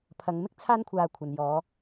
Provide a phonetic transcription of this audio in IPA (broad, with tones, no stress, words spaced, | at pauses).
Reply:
pʰɐ˨˧ŋ mɪ˥k̚ t͡sʰaː˥nkʷʰaː˧kʷʰɐ˨n jɔː˨˧